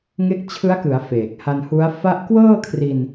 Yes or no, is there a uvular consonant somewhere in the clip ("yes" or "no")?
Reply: no